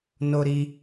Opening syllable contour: high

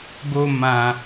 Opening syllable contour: low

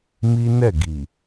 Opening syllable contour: high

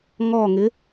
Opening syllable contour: falling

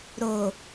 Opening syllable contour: low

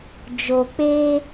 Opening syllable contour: low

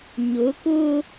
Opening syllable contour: rising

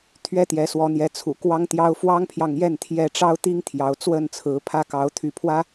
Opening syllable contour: high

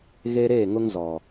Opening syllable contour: high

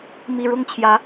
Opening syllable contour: low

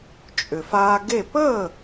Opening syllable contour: low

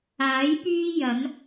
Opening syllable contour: rising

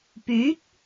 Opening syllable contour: rising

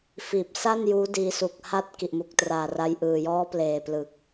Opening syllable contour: low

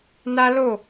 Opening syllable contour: high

